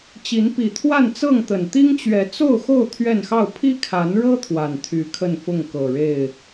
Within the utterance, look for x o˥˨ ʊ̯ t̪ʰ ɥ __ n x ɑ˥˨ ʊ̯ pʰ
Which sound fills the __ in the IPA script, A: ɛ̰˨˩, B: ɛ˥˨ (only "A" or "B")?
B